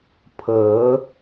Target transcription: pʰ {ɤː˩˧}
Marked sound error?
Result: no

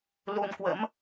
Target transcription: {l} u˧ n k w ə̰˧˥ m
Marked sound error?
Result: no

